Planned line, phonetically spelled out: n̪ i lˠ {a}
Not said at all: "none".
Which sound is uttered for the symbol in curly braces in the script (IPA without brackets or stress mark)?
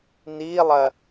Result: ɐ